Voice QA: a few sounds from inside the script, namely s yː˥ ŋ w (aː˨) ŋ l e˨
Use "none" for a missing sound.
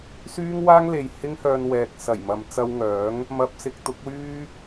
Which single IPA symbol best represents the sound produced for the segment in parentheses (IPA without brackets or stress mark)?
aː˥